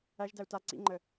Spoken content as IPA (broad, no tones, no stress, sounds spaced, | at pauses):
æ ʒ d æ u̯ t a ǀ ḭ ŋ͡ǃ ə